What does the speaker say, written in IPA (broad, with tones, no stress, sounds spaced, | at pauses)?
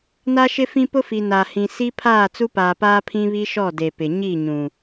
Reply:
n a˦ ʃ ɪ˦ f ĩ˦ p ʊ˦ f i˨ n a˨ h ĩ˨ s i˦ pʰ aː˦˨ t͡s u˦ p aː˨ p aː˦ pʰ ĩ˦ β i˦ ʃ ɔ˦˨ d e˨ p ɪ˨ ɲ i˦˨ ɲ ũ˨